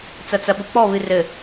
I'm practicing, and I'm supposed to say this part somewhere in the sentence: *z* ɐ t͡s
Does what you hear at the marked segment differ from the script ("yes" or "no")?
yes